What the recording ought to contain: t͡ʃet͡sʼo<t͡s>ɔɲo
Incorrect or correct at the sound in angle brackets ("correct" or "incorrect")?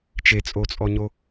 incorrect